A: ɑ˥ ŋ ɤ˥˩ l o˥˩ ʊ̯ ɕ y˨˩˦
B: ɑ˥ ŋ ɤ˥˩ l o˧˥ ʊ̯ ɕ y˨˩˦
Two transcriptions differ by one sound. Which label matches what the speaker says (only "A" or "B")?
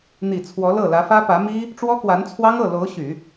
B